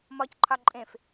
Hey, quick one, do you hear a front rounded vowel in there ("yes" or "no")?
no